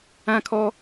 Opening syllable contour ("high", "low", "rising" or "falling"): high